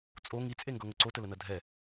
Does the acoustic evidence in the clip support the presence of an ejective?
yes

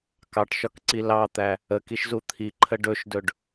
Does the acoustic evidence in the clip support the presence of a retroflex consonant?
yes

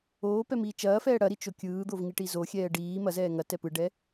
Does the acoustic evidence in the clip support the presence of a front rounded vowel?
no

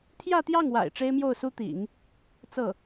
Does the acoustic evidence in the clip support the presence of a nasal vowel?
no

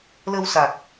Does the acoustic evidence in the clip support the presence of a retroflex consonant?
no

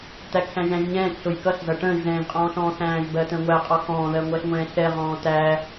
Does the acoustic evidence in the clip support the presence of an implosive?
no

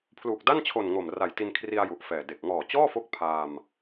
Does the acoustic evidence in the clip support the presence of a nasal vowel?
no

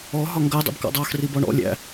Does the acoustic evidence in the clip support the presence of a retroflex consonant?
yes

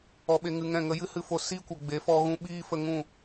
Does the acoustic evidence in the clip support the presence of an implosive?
yes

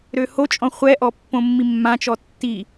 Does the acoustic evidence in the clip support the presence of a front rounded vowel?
yes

